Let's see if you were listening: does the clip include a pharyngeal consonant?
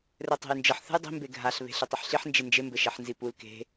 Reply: yes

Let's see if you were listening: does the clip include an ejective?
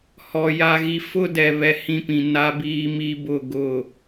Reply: no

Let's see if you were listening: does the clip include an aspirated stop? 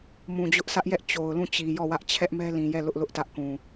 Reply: yes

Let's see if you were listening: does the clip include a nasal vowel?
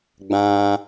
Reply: yes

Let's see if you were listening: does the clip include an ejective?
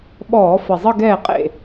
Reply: yes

